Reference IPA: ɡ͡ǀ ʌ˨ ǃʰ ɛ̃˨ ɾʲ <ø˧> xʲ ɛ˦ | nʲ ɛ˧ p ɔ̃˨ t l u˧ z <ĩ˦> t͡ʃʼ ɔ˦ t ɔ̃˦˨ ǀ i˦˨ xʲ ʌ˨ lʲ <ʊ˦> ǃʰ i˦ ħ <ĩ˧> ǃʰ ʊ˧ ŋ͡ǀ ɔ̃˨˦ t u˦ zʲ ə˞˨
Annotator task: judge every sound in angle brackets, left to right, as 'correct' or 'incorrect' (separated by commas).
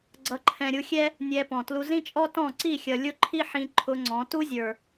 incorrect, correct, correct, correct